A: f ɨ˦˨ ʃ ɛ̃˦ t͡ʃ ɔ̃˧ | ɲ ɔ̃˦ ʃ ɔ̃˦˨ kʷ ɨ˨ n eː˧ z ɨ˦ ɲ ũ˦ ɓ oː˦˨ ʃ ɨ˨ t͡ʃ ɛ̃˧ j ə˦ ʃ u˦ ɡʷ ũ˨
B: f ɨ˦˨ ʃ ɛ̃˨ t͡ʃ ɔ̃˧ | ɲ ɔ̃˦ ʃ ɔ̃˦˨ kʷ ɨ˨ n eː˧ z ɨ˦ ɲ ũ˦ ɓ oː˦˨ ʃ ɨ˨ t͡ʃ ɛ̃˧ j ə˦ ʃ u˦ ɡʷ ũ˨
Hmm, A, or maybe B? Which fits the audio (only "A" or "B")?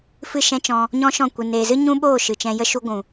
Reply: A